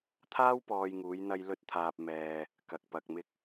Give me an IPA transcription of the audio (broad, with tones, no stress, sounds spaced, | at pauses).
t̪ʰ aː˥ w p ɔː˧ j ŋ uː˨˧ j n̪ ɐ˧ j l ɵ˧ t̚ t̪ʰ aː˨ p̚ m ɛː˨ | k ɐ˨ k̚ p ɐ˨ k̚ m ɪ˧ k̚